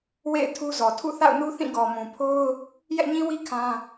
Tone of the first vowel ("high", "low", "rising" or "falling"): falling